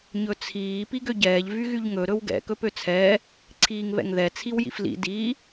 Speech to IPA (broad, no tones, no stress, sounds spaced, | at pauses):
ɲ ɵ t͡sʰ iː p i ɡ ø ɟ ɛː ʎ v y ɣ y ʎ ŋ ɵ ɾ ɵ w ɡ ɛ̰ k ɵ p ø t͡sʰ ɛː | ǀʰ iː ŋ β ɛ̰ ŋ ð ɛ t͡sʰ i w j ḭ f l ḭ d iː